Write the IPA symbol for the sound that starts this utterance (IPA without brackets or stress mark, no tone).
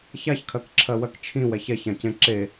ç